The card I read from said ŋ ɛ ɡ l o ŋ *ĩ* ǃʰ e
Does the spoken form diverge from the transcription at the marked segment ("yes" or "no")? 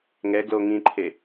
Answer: no